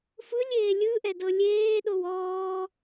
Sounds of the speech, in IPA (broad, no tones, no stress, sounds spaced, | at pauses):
f ɯ lʲ eː lʲ ɯ ʔ ɛ d ɤ lʲ eː ɗ o w ɔː